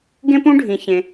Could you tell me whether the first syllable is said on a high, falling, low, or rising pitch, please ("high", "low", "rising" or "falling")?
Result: high